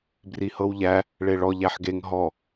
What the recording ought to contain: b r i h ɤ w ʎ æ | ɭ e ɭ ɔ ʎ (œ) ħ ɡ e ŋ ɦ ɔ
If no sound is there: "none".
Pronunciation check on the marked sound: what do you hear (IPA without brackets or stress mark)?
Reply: æ